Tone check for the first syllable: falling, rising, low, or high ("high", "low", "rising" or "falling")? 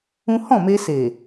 high